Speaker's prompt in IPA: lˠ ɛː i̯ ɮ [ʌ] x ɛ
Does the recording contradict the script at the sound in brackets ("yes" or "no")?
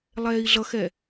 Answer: no